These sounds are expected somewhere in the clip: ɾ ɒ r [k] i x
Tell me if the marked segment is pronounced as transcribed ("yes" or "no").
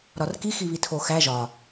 yes